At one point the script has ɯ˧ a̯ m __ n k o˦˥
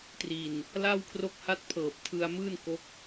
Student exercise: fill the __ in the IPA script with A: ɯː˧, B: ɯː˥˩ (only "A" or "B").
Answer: B